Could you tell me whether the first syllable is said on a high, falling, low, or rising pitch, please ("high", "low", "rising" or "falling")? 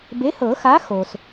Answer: rising